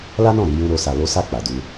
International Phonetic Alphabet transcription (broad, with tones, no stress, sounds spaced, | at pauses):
l a˦ n ɔ̃˦˨ ɾ i˧ j ũ˧ ɾ o˧ s a˧ l o˦ s a˦˨ k͡p a˨ d u˧